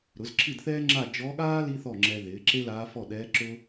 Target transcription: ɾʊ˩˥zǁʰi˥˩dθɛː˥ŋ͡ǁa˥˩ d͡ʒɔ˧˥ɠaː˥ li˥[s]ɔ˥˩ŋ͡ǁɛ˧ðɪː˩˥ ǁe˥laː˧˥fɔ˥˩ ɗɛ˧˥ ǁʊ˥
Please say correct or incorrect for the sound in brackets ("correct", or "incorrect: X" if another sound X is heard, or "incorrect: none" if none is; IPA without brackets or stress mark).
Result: incorrect: θ